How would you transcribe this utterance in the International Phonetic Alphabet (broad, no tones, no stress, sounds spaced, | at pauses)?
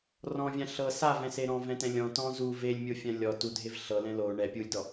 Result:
r ɔ̃ vʲ ã ɬ ɤ s a v ɛ̃ s e ɾ ɔ̃ v ɛ̃ t ɛ̃ lʲ ɔ̃ t ɔ̃ z u v e lʲ mʲ o fʲ ã lʲ ɔ t u dʱ e v ɬ ɤ l ɛ̃ l o ɳ ɛ pʲ u lʲ d ɔ